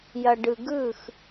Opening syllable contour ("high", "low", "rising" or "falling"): low